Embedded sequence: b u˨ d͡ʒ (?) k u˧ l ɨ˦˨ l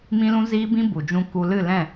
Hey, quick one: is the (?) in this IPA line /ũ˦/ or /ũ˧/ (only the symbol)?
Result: ũ˦